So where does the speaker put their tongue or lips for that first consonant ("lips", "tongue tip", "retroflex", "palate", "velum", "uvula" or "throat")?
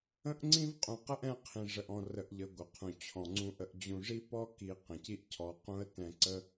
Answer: throat